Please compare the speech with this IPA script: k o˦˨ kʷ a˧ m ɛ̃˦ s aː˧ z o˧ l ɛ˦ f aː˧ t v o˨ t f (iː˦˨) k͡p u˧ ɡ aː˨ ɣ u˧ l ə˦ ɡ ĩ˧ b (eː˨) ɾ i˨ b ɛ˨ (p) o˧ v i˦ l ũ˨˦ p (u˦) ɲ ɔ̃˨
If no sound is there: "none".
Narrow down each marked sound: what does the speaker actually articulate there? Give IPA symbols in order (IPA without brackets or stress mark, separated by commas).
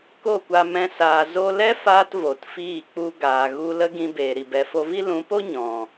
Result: iː˦˨, eː˨, f, o˦